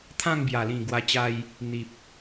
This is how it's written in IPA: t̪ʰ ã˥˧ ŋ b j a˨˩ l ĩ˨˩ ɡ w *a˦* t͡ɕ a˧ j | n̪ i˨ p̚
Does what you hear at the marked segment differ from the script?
yes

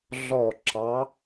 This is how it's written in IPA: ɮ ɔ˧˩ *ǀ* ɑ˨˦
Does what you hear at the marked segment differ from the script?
yes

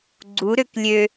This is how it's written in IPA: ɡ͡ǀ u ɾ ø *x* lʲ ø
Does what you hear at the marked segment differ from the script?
yes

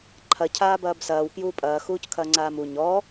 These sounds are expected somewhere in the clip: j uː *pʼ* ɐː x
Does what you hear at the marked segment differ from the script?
no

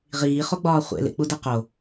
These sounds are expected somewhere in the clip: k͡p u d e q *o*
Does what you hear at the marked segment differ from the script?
no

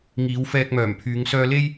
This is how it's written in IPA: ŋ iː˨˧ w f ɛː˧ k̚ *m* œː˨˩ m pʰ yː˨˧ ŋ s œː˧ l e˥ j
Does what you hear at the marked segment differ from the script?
no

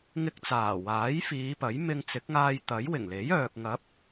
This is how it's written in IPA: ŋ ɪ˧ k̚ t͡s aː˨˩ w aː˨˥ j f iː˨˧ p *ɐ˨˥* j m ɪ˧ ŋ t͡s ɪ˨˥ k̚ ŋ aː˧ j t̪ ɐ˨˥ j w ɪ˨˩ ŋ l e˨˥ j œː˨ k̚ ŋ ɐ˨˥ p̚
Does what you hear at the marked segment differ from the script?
no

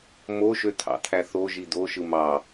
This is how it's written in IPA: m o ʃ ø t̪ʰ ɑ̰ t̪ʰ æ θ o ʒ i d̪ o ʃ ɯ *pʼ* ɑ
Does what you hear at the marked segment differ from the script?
yes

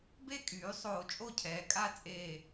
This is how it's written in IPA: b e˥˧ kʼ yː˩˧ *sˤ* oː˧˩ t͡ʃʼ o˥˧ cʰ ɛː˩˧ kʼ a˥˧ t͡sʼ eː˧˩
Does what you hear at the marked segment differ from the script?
no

